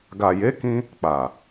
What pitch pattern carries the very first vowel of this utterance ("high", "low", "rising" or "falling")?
low